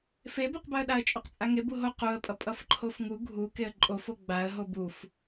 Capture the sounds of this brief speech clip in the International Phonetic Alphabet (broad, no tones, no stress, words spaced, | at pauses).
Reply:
febuqbaə̯ɗaə̯ t͡ʃʼuqt͡sʼaŋeb uɦo quə̯pʼʌ pʼʌfǃʰofŋu ɡʱu keə̯ǃʼofo ɡ͡baə̯ɦob uf